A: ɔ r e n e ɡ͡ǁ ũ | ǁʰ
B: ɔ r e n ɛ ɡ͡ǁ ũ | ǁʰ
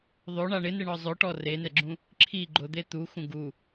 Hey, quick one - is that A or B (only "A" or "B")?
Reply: B